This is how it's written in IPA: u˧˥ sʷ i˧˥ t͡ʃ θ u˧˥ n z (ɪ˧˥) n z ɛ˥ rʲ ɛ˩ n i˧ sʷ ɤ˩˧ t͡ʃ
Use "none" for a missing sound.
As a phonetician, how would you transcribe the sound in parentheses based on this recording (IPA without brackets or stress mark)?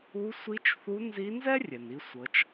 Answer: i˧˥